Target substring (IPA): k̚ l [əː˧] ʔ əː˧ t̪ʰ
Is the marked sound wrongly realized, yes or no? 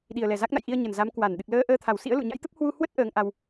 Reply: no